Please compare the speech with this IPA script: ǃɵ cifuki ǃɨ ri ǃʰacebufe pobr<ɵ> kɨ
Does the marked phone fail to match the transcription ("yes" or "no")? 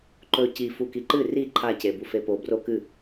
yes